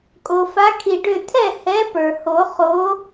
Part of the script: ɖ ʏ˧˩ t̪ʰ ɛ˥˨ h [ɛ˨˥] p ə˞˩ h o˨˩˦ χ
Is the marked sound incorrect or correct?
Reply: correct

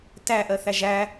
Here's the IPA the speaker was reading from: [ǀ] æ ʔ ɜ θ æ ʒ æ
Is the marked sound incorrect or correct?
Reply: incorrect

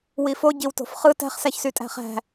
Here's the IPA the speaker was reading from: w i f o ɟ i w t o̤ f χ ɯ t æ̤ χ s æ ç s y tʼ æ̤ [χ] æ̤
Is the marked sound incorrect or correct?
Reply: correct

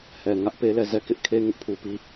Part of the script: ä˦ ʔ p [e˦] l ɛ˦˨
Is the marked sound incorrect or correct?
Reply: correct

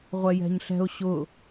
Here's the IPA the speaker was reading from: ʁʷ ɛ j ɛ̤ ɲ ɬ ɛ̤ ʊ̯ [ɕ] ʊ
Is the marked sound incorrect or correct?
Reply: correct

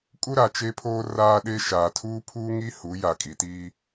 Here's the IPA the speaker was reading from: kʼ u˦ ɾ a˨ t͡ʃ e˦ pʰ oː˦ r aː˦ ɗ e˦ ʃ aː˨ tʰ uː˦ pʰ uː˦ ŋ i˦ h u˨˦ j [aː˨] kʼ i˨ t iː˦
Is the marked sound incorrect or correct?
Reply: incorrect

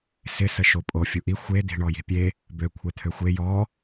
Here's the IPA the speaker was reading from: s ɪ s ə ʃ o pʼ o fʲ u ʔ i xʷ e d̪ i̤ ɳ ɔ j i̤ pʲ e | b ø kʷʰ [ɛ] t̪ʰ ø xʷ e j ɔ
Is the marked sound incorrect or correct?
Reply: correct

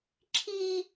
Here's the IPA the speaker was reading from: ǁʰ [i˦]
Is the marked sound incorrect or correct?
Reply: correct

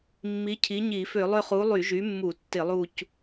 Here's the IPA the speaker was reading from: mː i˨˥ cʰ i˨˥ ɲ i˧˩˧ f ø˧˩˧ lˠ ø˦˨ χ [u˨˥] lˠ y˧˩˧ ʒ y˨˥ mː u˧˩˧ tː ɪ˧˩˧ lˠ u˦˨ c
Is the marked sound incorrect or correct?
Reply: correct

